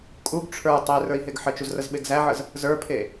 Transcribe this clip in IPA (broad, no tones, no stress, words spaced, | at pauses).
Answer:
kʼuɡ ʈ͡ʂʰə˞ tˤerə˞i̯ ɦeɡħət͡ʃuz rəzɓeɡzæʕəz | zə˞pʰe